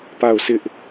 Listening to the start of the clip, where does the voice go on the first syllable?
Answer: falling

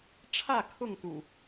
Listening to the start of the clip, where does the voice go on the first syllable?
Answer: falling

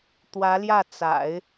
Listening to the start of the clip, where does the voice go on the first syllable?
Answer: rising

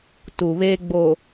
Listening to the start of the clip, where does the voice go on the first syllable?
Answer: low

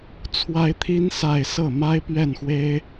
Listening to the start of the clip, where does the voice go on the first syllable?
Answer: high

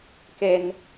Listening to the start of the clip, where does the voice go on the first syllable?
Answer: high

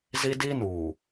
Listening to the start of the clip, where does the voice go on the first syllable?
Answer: high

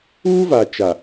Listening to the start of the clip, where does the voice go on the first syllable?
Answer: high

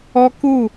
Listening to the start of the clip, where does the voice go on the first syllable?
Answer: high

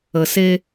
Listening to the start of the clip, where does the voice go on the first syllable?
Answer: low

